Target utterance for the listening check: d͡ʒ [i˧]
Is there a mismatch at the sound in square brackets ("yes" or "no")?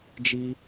no